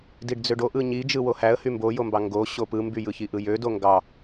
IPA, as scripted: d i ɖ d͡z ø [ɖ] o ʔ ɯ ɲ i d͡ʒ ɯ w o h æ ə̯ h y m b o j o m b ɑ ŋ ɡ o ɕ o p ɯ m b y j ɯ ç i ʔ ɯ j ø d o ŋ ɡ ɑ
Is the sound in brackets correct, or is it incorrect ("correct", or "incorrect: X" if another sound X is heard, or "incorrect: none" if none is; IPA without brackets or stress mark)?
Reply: correct